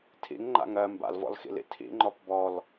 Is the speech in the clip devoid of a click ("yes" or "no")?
no